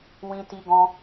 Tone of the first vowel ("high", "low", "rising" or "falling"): high